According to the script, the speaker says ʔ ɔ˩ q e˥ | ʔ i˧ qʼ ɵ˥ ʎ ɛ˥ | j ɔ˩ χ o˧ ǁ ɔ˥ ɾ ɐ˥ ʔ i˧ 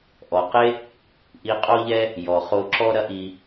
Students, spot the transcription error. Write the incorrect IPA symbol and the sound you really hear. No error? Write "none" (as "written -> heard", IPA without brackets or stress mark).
ɵ˥ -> o˥